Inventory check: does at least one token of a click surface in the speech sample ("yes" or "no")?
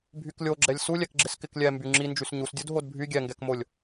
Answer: yes